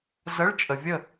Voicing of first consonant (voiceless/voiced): voiced